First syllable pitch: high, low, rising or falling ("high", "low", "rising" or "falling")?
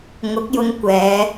rising